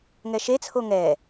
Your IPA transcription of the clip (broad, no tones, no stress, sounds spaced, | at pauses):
ŋ ɛ ʃ e t͡sʰ o ŋ ɛ